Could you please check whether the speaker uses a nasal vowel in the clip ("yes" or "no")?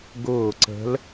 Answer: no